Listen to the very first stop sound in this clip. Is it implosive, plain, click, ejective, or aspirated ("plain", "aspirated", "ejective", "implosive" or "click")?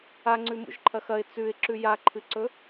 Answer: click